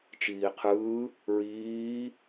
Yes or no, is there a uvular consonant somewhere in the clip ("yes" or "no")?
yes